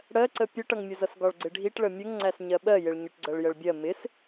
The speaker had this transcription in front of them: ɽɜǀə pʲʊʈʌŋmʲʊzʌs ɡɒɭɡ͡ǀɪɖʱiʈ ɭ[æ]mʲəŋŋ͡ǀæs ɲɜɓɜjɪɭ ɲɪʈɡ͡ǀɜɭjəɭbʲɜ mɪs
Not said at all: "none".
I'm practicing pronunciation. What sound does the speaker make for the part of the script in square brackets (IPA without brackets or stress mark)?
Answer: ə